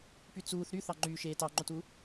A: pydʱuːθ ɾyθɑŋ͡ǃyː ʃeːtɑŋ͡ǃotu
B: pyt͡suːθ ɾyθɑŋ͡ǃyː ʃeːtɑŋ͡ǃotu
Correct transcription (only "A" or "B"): B